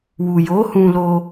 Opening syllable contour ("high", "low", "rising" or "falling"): low